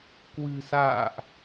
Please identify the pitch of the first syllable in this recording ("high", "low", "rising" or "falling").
low